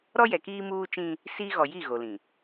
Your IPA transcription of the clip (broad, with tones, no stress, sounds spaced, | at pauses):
ɾ ɔ˦ j ɛ˨ k iː˦ m uː˦ t͡ʃ ĩ˦ | s iː˦ ɣ ɔ˨ j i˦˨ ɣ o˨ l ĩ˨